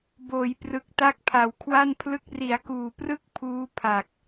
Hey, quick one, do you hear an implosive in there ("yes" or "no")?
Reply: no